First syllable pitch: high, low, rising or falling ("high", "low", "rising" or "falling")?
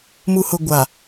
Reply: low